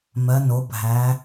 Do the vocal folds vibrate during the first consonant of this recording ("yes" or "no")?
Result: yes